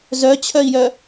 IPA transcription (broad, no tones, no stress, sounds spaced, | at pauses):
z œ t͡ɕʰ œ i̯ j œ